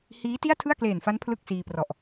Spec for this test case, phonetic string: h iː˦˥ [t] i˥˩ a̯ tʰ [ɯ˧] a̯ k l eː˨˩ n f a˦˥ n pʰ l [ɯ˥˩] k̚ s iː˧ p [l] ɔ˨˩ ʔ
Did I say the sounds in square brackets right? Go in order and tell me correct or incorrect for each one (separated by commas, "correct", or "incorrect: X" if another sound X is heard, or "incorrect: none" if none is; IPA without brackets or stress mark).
correct, incorrect: ɯ˥˩, correct, incorrect: r